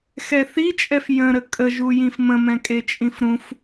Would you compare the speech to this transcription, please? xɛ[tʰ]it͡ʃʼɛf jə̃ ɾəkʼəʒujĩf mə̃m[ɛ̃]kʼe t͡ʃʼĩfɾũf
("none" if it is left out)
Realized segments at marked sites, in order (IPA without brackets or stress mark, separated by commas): θ, ɛ̃